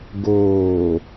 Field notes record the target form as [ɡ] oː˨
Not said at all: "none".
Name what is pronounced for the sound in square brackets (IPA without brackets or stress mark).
ɡ